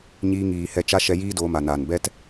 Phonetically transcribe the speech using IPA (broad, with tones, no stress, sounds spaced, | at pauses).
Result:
ɲ iː˧ ŋ iː˨ h ɛ˧ t͡ʃ a˦ ʃ ɛ˧ j iː˦ d oː˧ m a˨ n a˨ n b ɛ˦ t